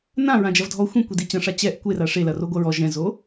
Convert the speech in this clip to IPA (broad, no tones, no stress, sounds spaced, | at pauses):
n ã ɹ ã d͡ʒ ɐ v dʱ ɔ xʷ ĩ kʷ i d i t͡ɕ ɐ̃ ʂ a t͡ɕ ɛ ʔ kʷ e r a ʂ e l ɐ r o ɡʷ ɐ ɹ ɔ ʒ ɛ̃ z o